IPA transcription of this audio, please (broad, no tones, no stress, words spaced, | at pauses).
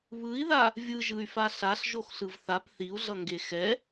βɯi̯ða | vʲɯʒɯy̯fa ɬaɬʒoxɬɯv θap θiu̯ɮʌŋɡe xɛ